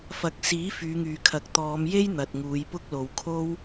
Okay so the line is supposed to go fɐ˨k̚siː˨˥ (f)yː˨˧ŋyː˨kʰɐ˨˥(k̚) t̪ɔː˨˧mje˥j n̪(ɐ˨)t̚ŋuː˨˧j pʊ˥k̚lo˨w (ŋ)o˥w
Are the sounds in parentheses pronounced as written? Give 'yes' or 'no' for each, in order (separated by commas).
yes, yes, yes, no